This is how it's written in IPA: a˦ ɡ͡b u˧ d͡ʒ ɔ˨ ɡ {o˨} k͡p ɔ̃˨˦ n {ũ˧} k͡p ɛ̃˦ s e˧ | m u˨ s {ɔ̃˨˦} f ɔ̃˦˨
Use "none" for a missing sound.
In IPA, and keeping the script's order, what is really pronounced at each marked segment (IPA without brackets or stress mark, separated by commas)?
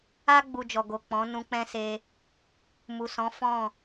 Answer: o˨, ũ˧, ɔ̃˨˦